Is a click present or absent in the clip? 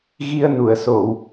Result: absent